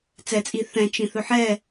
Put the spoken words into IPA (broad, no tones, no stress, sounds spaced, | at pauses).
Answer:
t͡s ɛ t͡sʼ i θ ɛ̃ t͡ʃ ĩ θ ɵ ħ ɛ